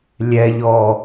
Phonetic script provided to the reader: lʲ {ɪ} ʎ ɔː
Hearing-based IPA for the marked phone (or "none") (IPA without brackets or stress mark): ɛ